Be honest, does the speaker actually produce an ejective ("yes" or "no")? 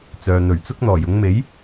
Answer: no